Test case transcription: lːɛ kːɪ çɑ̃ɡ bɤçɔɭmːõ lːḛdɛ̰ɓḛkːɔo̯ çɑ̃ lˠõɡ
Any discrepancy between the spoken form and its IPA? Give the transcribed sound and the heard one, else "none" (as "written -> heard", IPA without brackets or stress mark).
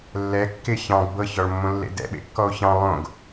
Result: none